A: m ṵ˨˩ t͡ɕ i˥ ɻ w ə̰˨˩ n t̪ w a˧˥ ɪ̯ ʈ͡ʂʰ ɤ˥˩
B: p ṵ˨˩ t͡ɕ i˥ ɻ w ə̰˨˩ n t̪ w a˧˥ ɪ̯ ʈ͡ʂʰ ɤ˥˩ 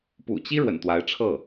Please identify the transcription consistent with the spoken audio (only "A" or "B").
B